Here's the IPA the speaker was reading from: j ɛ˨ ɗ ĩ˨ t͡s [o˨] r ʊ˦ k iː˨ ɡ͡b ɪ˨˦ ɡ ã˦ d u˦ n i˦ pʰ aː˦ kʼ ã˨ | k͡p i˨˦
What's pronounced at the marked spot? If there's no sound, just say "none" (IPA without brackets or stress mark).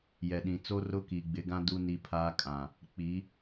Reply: o˦